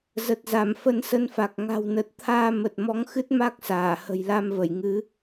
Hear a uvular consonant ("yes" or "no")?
no